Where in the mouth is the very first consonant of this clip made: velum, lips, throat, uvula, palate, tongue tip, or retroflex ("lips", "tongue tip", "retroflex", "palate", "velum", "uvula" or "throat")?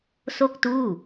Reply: tongue tip